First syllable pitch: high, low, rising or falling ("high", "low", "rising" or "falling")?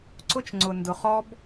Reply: high